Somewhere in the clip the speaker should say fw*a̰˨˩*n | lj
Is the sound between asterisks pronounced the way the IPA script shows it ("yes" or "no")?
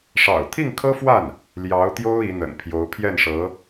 no